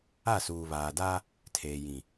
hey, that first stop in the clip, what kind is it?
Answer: plain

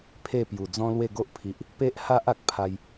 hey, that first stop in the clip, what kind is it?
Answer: aspirated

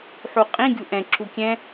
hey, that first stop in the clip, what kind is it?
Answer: ejective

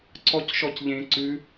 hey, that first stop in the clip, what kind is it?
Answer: click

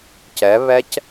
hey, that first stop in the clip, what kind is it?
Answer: plain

